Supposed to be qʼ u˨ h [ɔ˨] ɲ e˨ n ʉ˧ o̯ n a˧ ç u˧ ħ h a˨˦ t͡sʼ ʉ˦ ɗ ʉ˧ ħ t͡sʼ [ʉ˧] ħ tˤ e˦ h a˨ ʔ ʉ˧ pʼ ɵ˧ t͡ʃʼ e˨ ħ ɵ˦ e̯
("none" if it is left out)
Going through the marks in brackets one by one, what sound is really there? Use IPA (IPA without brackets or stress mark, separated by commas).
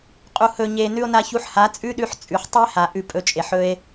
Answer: ɵ˨, ʉ˨